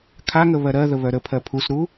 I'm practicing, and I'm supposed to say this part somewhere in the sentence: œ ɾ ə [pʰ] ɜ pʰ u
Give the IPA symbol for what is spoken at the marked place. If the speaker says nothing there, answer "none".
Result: pʰ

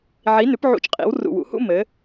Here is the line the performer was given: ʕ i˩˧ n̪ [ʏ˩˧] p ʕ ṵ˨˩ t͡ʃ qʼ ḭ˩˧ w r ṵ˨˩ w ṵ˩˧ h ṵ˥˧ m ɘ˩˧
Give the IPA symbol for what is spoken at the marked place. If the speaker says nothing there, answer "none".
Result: ʏ˩˧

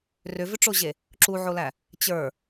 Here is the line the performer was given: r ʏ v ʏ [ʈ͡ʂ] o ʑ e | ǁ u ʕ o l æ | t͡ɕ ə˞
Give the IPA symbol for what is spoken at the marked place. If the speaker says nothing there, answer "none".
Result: ʈ͡ʂ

